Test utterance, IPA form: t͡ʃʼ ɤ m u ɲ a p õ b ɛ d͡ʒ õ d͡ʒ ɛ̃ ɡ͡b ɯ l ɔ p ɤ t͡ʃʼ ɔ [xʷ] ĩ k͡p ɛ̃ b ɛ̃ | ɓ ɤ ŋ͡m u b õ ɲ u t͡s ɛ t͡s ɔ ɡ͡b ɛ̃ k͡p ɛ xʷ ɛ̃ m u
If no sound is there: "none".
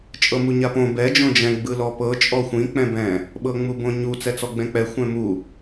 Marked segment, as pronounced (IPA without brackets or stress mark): xʷ